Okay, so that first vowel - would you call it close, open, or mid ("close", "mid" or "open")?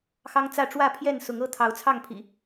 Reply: open